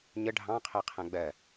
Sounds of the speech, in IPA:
ɲə ɖʱɑ̃qʰɜqʰæ̃ ɡ͡bɜ

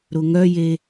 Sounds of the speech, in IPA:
ɾʊŋœje

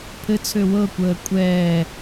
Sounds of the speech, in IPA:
pʰɘt͡sʰø wɤkʷəː kʷʼɛː

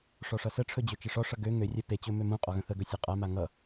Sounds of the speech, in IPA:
ʂɔʂʌsəʈ͡ʂʰɵ d͡ʑøt͡ʃeʂɔʂʌ ɡø ŋørʲɛ pet͡ɕɵ mømũqʼɔ ɣə̃θəɡɵ sʲɔqʼama ŋʌ

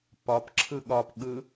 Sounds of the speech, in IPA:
pɒpǁʰɯ ɠɒpɠɯ

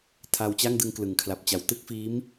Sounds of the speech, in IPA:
tʰa˧wt͡ɕa˥˩ŋdɯ˧ŋ klɯ˩˦ŋkʰla˨˩p̚t͡ɕa˨˩w tɯ˥˩k̚fiː˦˥m

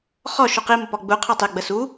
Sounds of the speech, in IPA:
χɔ ʃuqi mʊpɔɡ͡bu qʰɔtˤe ɡ͡bəsu

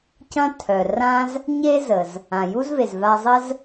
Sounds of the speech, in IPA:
cɐ̃˥tʰœ˩ rã˥z | ɲe˥zə˩z | ã˩ju˥zve˩z va˧zˤə˥z

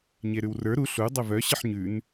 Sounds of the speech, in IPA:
ɲeɾʉwrə˞ ɾu ɬu dˤəvœ ɕəħɲʉn

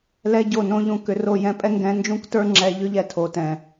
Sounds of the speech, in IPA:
lɛ˦ɟo˦˨nõ˦ʎũ˧ kʏ˧ro˦˨ jɛ̃˧pʼɛ˦ŋɡɛ̃˧ nd͡ʒũ˦ktə˞˦ ŋ͡ǁɛ˧ʎʏ˦ʎɛ˧ tʰo˨tɛ̃˨

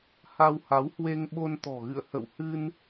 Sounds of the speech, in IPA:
ha˧wha˨˦whwe˧ŋ ɓo˧nt̪ɔ̤˨˩ɣɨ̰˧˨ə̯ hə̰˧˨whɨ˧n

